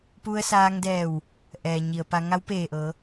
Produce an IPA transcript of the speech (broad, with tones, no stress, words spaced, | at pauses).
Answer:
pu˧ə̯saː˧ŋdɛː˧˩w | ʔɛː˩ɲi˩ə̯ pa˧ ŋa˧˥wpeː˧˩ʔɤː˩˧